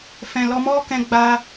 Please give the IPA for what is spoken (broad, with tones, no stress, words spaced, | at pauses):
fɛ̃˨lɔ˧mɔ˦kɛ̃˧ ɡ͡ba˧